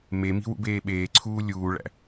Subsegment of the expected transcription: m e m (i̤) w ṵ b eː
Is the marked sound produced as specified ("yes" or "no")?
yes